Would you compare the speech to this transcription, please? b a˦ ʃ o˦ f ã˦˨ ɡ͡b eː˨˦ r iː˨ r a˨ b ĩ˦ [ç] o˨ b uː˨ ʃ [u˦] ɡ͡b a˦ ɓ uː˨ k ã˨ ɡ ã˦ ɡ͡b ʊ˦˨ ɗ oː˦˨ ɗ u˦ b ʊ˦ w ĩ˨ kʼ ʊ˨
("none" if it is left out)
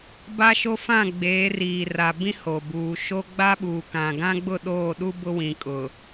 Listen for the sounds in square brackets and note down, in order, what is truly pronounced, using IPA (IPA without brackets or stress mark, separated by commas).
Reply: h, o˦